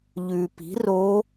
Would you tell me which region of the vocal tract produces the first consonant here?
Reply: palate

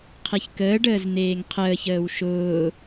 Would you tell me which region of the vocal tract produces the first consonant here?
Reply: uvula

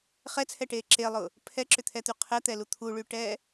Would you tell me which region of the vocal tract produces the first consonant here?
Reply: uvula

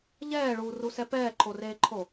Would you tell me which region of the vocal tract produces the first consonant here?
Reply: palate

